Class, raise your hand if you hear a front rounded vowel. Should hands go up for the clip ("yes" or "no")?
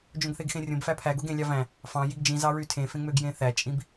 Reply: yes